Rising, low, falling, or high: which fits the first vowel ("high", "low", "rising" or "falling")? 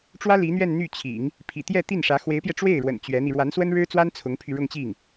high